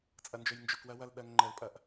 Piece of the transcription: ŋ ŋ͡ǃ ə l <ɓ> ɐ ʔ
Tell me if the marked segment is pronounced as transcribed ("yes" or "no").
no